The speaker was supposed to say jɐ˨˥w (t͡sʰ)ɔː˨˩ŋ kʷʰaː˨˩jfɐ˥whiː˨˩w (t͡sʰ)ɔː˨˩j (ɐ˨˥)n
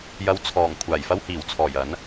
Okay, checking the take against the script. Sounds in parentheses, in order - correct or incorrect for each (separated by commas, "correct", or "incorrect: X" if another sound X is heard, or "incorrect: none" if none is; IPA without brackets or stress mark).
correct, correct, correct